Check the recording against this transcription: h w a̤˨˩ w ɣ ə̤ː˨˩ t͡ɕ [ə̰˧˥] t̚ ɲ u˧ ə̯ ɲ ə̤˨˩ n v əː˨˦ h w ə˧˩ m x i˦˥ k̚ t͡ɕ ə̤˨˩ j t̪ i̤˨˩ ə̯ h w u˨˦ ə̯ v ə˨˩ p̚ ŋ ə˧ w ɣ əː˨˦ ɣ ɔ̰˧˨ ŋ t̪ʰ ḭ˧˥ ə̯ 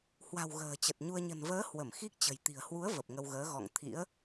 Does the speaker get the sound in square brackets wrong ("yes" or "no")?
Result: yes